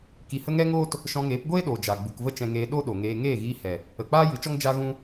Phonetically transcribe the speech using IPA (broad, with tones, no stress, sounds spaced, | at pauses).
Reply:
k i˧ h ə˦ ŋ ɛ˦ ŋ oː˦ t | ʃ ɔ̃˧ ŋ eː˨˦ p ɡʷ eː˦ ɗ oː˨ d͡ʒ a˨ ɡ͡b u˨ k v ə˦ t͡ʃ ɛ̃˧ ŋ eː˧ ɗ o˦ ɗ o˨ ŋ eː˧ ŋ eː˦˨ ɣ iː˧ h ɛ˨ | ə˨ k͡p aː˦ j ɨ˨˦ t͡ʃ ɔ˦ ŋ d͡ʒ a˦ ɣ ũ˦